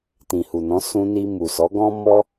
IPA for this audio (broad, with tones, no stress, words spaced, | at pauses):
tĩ˨hu˨nɔ̃˨˦ sũ˧ni˧mu˨sɔ˨˦ ɡɔ̃˦ mɔ˦